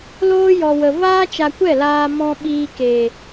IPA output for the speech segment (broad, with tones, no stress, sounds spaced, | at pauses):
l oː˧ j ɔ˨ w ə˨ v aː˦ t͡ʃ a˧ kʷ ɛ˦˨ l aː˧ m ɔ̃˧ ɓ iː˧ k eː˨